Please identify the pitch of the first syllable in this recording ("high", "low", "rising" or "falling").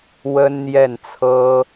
high